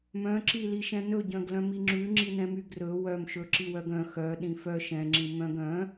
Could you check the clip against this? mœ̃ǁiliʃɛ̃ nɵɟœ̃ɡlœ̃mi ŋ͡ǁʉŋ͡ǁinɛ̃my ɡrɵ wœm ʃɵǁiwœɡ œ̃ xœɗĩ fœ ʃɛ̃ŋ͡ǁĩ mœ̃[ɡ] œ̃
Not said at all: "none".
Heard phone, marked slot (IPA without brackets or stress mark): ɡ